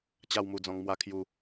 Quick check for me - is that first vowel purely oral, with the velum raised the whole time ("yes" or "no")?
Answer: yes